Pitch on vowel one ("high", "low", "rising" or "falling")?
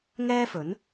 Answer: high